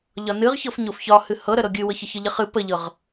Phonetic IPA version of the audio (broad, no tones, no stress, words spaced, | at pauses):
ʎɒnɨʁ çɤfɲofçɒ hɨhɤ ɾəɾɤɡʲɨwɤç əçəʎəχɨ pəʎɤʁ